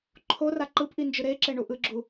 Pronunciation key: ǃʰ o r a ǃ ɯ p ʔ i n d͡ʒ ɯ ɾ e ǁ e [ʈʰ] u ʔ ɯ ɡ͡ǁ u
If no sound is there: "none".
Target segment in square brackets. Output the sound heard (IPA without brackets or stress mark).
ɳ